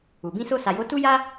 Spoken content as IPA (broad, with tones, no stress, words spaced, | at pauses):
u˨ bĩ˧so˧sa˨jo˨˦ tu˦ja˦